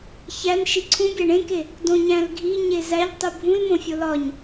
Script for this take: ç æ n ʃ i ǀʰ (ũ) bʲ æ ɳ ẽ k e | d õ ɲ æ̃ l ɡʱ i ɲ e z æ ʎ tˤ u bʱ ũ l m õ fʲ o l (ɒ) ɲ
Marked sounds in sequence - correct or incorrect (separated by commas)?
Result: correct, correct